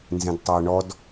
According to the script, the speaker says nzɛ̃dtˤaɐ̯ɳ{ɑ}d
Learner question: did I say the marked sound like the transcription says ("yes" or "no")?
no